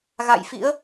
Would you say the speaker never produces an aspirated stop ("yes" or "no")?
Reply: yes